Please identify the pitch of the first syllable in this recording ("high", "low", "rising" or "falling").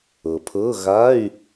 low